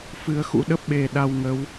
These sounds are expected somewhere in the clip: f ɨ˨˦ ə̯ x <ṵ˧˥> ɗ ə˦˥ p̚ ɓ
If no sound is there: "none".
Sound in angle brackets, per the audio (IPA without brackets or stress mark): ṵ˧˥